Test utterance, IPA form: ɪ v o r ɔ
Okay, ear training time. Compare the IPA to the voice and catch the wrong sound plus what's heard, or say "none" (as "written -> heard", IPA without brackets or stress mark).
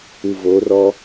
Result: ɪ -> ɨ